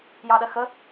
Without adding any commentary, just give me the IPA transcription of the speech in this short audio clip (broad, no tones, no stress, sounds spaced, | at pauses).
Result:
j ɑ ɗ ɜ x ə